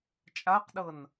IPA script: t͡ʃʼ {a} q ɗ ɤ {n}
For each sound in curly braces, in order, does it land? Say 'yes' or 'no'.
yes, yes

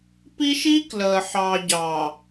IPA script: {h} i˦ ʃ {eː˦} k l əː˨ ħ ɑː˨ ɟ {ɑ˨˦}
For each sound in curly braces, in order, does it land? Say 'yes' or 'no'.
no, no, no

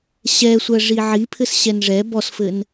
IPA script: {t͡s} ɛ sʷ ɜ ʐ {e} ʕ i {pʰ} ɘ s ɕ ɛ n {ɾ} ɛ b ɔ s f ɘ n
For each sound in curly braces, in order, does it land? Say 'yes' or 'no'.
no, no, yes, no

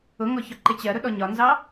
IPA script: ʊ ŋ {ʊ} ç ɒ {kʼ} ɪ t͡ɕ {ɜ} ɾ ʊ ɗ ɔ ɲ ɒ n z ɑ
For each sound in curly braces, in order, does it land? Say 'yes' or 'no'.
no, no, yes

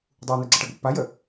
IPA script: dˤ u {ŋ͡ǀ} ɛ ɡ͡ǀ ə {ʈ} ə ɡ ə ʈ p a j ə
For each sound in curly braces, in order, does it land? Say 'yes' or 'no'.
no, yes

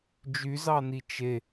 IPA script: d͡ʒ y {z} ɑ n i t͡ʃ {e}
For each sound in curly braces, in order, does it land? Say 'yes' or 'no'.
yes, yes

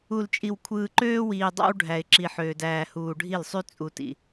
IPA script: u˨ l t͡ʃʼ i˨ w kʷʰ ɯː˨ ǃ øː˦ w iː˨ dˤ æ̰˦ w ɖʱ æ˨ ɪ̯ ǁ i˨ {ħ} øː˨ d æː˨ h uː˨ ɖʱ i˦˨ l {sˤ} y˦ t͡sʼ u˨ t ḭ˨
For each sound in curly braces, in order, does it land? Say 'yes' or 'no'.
yes, yes

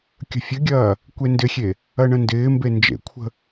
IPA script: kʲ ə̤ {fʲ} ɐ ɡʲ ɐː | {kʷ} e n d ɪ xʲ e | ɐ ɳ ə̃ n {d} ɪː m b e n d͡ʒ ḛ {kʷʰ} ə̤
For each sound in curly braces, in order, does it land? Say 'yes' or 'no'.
yes, yes, yes, yes

